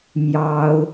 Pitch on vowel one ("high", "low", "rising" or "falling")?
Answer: high